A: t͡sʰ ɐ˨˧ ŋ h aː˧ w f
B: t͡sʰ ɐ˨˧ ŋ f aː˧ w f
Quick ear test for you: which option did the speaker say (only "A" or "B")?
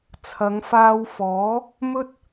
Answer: B